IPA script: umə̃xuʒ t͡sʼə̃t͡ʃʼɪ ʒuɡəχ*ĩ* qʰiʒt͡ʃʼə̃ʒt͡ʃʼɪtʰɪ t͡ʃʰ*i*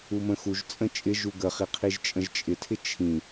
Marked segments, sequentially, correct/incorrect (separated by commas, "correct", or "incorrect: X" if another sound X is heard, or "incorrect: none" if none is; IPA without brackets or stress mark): incorrect: i, incorrect: ĩ